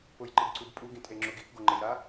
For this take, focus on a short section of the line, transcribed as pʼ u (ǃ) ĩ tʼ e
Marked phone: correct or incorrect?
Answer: incorrect